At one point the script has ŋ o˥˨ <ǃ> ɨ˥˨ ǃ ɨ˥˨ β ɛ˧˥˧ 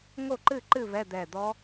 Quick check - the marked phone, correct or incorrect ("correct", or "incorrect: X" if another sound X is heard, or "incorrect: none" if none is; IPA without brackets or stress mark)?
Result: correct